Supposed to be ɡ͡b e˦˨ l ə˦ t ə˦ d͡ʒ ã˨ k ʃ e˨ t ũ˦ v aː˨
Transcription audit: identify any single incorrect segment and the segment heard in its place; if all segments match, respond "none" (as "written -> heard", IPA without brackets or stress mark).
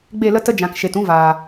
none